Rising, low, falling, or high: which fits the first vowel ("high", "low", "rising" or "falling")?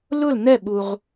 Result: falling